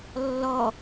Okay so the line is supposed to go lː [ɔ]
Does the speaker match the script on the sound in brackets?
yes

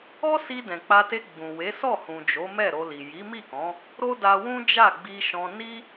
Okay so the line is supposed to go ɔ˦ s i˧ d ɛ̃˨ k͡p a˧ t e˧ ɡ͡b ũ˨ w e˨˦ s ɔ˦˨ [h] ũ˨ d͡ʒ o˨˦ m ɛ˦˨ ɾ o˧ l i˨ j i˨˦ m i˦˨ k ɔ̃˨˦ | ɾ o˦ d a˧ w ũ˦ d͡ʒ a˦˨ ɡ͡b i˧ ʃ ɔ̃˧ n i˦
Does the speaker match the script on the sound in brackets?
yes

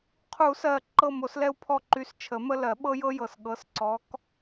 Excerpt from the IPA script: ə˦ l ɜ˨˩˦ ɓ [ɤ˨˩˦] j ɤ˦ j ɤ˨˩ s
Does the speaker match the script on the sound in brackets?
no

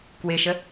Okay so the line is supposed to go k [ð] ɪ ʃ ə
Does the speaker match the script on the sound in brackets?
no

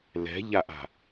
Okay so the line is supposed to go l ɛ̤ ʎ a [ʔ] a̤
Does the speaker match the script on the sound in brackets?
yes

